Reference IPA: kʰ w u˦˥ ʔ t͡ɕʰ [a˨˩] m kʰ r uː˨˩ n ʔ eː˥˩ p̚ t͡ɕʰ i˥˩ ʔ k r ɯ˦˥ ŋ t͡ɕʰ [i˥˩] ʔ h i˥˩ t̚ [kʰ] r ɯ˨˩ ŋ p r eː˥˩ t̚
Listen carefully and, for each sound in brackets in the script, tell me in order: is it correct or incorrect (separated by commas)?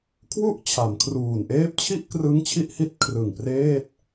incorrect, correct, correct